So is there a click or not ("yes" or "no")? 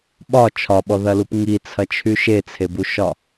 no